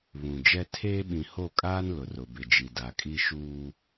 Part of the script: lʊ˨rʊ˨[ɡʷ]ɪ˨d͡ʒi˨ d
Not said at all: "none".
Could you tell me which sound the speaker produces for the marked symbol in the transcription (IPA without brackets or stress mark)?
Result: b